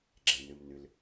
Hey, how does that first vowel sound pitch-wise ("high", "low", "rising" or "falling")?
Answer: low